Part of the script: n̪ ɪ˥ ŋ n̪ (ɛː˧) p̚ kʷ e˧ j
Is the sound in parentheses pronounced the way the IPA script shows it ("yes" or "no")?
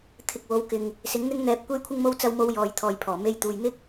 yes